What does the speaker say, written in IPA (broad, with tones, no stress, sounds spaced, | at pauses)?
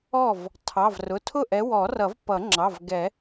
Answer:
ɔ˥˩ v | tʰ ɑ˩˧˩ v r ʊ˩˧˩ tʰ ʊ˥˩ ʔ ɛ˨˦ w ɔ˨˩˦ r ʌ˨˩˦ v p ʌ˨˩˦ ŋ͡ǁ ɑ˩˧˩ v ɡ ɛ˨˩˦